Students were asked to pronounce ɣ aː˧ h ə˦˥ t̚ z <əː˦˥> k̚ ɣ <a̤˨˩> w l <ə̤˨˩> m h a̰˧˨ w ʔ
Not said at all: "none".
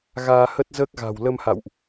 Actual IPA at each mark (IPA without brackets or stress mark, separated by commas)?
əː˦˥, a̤˨˩, ə˧